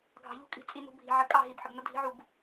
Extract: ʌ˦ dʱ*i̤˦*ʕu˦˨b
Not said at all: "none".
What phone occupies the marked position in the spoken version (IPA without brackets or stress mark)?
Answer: i̤˦